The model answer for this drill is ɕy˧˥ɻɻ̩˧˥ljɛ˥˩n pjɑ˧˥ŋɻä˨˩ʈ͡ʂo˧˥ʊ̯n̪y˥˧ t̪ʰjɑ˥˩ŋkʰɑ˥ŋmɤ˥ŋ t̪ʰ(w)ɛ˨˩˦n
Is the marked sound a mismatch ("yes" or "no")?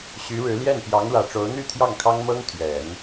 yes